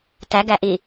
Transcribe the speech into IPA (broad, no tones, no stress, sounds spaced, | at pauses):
t æ ɡ æ ʔ i